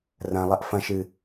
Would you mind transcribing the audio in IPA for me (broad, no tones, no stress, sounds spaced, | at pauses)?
r ɐ̃ lˠ ɐ ʔ f ɐ̃ ʃ ɨ